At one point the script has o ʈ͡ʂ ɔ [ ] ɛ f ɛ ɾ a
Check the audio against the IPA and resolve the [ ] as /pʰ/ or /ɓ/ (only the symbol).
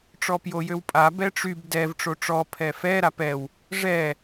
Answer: pʰ